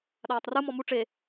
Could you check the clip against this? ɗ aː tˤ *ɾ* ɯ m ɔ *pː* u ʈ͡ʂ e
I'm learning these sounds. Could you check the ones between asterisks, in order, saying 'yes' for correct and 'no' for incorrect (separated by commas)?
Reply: no, no